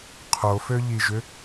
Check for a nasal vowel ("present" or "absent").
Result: absent